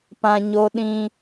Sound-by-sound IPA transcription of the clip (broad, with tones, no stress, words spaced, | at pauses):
pã˨ ɲo˦ ɗĩ˦